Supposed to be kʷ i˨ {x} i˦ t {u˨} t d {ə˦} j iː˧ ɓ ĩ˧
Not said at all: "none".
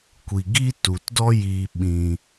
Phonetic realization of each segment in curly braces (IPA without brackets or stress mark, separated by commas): ɡ, u˨, ɔ˦